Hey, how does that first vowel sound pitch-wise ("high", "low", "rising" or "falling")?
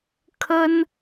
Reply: high